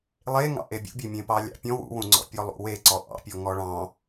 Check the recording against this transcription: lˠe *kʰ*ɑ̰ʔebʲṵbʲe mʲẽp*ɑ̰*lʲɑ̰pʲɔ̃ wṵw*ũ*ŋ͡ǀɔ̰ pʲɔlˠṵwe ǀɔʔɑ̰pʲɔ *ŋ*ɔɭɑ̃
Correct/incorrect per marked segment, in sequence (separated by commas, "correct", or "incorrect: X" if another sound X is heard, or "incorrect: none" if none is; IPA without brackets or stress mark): incorrect: ŋ, incorrect: ɑ, correct, correct